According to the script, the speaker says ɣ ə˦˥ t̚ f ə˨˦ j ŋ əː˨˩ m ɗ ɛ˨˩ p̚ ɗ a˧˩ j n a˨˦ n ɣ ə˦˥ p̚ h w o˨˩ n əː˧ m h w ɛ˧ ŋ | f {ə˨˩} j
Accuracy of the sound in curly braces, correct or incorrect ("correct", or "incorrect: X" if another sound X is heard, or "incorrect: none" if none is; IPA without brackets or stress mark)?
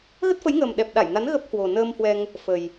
correct